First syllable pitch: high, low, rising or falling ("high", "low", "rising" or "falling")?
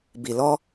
low